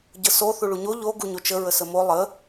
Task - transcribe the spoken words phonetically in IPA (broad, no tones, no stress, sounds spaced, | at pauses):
ɟ ə s o θ u ɭ u ɲ o ʎ o ɡ u ɲ o t͡ʃ ə ɹ ə s ə m o lˠ ə